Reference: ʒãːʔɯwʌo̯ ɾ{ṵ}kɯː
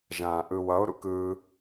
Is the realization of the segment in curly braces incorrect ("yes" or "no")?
no